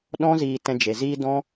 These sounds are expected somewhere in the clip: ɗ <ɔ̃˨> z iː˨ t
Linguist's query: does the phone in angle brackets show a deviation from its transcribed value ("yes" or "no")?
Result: yes